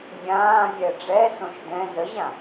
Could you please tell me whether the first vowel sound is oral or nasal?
nasal